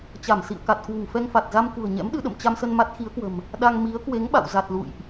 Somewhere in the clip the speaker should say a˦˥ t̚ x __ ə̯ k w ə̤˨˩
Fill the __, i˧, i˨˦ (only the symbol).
i˨˦